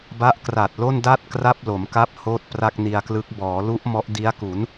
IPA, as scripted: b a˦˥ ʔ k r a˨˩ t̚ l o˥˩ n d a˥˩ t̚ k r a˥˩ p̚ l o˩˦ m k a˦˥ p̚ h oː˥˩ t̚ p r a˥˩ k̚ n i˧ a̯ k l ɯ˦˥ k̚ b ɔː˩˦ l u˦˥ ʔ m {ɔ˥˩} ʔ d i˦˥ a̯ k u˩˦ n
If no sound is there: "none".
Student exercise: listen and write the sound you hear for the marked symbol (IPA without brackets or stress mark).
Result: ɔ˦˥